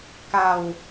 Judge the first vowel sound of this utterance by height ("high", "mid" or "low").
low